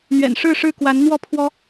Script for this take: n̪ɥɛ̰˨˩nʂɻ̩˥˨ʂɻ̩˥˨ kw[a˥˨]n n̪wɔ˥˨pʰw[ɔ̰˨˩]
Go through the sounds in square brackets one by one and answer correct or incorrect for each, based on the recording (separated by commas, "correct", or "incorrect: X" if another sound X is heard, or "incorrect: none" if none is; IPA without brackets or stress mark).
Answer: incorrect: a˨˦, incorrect: ɔ˦